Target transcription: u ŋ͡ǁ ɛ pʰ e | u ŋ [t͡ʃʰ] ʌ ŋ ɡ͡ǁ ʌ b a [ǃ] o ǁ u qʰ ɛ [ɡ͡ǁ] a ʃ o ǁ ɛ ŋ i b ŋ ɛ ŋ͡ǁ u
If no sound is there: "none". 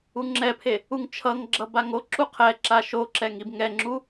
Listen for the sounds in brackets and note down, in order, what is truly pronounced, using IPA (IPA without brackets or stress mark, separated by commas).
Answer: t͡ʃʰ, ŋ, ǁ